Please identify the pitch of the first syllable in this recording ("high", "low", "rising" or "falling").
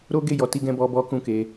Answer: high